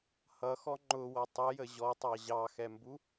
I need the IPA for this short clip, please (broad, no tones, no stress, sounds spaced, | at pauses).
h ʌ x ɔ ŋ͡ǃ ʊ w ʌ tˤ ʌ j ə ʑ ɔ tˤ ɑ ʑ ɑ x ɛ m b u